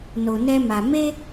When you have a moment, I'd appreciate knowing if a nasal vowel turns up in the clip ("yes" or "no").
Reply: no